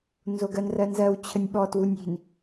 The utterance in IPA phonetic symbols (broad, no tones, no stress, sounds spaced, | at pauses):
n z o ɡ ɜ n r ɜ n z ɜ w t͡ɕʰ ə nʲ ɓ ɔ t w u nʲ i̤ n